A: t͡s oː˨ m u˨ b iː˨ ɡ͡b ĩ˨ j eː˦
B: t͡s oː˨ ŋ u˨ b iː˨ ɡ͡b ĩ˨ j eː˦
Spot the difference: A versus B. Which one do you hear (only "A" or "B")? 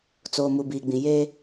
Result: A